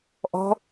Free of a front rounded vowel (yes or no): yes